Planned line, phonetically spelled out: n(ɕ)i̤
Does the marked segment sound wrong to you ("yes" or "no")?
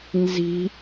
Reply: yes